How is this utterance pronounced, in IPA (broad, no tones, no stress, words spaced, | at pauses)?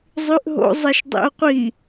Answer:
zˤyʔɦo̰ zˤɛʃdˤḭo̯qʷi